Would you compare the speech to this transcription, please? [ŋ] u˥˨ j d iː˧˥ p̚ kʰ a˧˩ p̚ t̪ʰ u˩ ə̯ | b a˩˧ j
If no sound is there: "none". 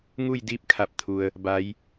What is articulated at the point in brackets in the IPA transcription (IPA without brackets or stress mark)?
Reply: ŋ